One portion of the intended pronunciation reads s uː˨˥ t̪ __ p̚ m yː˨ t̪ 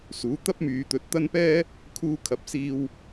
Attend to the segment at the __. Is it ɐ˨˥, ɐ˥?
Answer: ɐ˥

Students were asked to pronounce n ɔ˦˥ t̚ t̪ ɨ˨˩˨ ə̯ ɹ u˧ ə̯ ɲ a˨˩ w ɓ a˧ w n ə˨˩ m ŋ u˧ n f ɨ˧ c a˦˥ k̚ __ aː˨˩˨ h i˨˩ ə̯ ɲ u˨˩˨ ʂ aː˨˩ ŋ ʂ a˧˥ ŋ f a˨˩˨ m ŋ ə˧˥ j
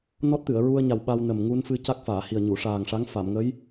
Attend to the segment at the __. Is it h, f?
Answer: f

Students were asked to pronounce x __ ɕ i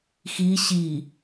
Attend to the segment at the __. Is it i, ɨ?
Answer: i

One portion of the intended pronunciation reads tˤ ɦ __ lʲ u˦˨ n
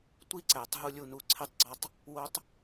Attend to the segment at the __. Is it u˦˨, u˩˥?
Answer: u˦˨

